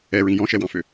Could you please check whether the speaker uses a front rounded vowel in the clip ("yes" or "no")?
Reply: yes